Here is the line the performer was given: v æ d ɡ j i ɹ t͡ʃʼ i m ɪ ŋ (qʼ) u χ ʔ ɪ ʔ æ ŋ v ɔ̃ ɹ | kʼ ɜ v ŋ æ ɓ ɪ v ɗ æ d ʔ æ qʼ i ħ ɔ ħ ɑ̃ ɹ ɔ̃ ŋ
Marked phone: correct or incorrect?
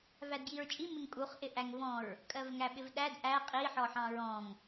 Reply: incorrect